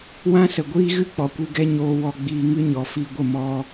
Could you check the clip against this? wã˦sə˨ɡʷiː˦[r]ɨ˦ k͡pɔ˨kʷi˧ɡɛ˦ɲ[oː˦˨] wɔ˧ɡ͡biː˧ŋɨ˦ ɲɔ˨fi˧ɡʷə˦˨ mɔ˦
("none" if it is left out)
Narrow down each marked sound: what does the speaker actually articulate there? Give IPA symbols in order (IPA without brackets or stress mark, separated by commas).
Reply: ɣ, oː˧